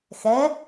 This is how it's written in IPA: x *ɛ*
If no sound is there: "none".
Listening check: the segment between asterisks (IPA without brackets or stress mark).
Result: ɛ